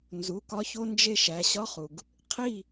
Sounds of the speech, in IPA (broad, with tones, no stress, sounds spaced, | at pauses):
n z u˩˧˩ k ɒ˦ ç o˦ n d͡ʒ e˦ ʃ æ˩˧˩ ɕ ɒ˦ χ u˩ ɡ | qʰ i˦˨